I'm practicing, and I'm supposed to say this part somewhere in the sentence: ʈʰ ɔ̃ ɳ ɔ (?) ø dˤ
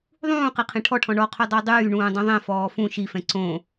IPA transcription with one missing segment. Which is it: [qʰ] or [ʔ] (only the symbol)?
qʰ